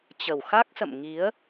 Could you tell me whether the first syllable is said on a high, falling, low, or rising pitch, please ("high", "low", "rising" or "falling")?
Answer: low